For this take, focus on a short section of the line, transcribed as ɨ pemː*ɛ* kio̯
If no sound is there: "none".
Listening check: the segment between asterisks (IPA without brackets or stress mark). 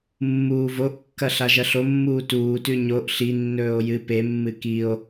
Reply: ɨ